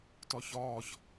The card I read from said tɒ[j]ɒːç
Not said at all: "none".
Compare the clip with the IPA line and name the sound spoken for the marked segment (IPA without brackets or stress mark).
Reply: ç